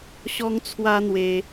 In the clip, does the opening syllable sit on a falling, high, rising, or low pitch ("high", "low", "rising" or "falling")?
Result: high